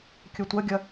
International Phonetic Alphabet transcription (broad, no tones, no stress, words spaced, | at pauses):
kʲɵtʷɐɡʲɐ